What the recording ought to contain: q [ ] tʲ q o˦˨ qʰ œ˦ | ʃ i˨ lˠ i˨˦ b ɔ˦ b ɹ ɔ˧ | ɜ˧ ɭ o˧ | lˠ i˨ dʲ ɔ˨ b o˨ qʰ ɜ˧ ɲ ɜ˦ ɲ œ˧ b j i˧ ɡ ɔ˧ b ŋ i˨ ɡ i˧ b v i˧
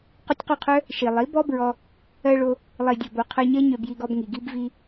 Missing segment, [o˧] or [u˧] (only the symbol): o˧